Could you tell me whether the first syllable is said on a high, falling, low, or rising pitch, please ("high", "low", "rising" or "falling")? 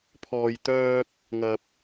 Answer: low